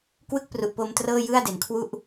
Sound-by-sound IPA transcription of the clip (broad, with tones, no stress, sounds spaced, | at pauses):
k w ɯ˥˩ k̚ p r u˨˩ ʔ p o˧ m t r ɤː˥˩ j ɯ˥˩ a̯ d e˩˦ n kʰ w u˥˩ ʔ